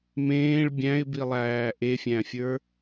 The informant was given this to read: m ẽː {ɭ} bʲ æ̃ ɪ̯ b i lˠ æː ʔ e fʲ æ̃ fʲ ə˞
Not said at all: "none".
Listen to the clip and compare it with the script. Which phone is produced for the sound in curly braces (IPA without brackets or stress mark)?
ɭ